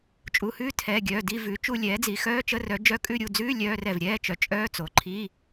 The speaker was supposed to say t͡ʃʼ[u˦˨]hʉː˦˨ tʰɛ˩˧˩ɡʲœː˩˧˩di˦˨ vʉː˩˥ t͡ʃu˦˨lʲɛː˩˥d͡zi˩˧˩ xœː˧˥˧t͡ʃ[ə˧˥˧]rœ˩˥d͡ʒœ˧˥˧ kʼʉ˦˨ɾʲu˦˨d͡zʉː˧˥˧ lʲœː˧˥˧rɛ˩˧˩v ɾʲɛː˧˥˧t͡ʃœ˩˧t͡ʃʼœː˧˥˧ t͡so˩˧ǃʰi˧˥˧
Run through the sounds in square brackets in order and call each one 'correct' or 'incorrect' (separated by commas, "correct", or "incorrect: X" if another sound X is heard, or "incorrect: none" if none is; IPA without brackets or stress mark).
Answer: incorrect: u˩˧˩, correct